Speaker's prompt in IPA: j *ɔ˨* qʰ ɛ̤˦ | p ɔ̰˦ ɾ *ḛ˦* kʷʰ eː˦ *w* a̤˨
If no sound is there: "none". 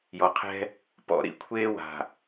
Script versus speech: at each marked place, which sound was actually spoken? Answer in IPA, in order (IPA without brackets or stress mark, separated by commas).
ɔ˨, ḭ˦, w